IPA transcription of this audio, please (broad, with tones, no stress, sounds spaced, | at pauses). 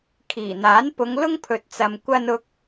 kʰ iː˨˩ n̪ aː˨˥ n p ʊ˨˧ ŋ l ʊ˥ ŋ pʰ ɵ˨ t̚ t͡s ɐ˨ m kʷ ɐ˧ n ʊ˧ k̚